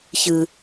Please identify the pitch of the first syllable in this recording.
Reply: low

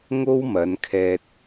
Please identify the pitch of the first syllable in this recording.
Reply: high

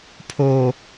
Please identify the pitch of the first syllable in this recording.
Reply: low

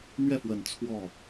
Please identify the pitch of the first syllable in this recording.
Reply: falling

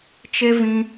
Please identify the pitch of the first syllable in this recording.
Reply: high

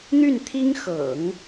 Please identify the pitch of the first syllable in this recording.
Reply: falling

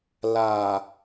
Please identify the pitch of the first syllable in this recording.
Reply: low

